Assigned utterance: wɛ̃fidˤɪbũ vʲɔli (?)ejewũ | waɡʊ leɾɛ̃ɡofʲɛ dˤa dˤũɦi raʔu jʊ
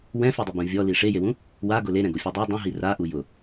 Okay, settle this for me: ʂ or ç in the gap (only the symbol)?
ʂ